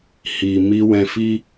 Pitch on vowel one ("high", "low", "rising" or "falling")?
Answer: low